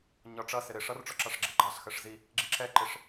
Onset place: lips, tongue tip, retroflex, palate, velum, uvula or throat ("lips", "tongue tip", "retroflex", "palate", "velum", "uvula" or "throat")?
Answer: palate